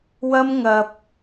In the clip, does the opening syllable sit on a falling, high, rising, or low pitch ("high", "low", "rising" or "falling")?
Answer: high